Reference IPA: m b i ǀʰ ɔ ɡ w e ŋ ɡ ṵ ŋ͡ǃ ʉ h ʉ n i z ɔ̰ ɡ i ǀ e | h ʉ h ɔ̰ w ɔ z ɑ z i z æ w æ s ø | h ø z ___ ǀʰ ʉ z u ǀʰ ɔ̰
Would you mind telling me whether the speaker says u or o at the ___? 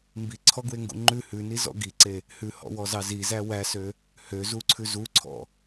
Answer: u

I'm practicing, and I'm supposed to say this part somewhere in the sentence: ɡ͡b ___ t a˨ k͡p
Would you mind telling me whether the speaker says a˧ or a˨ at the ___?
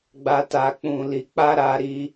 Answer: a˧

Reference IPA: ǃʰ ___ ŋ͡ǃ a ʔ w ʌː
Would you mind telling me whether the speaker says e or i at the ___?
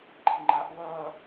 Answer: i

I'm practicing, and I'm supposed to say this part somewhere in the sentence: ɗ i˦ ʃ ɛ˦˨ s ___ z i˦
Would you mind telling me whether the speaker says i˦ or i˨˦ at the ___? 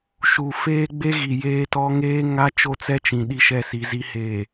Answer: i˨˦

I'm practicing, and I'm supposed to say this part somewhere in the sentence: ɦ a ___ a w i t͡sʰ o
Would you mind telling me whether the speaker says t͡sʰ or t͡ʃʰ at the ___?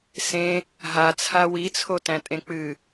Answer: t͡sʰ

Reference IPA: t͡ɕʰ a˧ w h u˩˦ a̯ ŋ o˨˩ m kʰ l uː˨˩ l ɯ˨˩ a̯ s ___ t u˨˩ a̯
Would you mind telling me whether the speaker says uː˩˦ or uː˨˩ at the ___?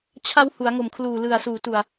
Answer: uː˩˦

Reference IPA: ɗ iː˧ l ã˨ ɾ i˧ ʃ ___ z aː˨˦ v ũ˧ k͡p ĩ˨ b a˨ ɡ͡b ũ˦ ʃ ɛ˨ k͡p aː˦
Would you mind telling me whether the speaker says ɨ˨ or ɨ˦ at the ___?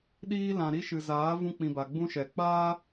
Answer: ɨ˨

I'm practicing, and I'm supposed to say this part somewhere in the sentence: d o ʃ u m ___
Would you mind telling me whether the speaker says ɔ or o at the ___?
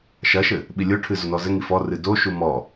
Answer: ɔ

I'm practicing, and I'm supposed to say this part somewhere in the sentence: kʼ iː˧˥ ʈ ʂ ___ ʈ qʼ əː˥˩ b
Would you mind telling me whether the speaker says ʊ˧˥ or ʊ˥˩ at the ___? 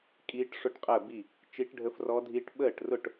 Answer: ʊ˥˩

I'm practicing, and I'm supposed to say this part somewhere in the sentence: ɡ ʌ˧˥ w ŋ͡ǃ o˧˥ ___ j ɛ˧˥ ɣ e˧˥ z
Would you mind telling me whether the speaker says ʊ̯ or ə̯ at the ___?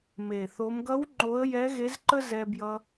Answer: ə̯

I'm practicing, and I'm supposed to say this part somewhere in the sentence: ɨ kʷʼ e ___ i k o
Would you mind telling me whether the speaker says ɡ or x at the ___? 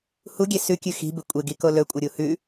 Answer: ɡ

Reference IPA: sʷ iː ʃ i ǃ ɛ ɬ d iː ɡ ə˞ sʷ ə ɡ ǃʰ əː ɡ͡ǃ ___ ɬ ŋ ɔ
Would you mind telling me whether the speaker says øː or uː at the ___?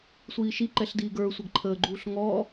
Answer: uː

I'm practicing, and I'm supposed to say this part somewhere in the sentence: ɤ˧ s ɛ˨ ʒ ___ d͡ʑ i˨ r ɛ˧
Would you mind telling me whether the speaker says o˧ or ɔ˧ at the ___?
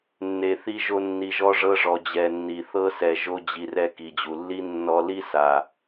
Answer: o˧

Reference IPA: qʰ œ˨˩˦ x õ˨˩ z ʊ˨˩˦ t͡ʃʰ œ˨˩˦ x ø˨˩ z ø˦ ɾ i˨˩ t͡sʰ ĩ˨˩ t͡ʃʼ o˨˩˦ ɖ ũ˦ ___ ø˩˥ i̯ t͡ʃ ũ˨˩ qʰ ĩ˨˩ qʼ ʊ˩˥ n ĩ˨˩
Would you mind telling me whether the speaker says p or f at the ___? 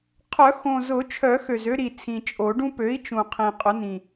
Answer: p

